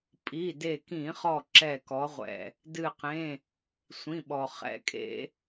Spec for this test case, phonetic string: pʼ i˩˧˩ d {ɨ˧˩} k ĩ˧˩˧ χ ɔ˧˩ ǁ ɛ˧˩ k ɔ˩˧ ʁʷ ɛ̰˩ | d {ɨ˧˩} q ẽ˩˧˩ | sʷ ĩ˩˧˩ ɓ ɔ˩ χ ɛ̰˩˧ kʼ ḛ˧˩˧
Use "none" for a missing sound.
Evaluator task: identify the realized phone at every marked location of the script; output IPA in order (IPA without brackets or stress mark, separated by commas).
e˧˩, ɨ˧˩